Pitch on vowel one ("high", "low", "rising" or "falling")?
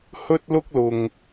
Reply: high